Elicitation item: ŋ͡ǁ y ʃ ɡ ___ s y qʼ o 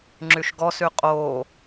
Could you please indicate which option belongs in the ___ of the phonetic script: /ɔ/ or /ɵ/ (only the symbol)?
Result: ɔ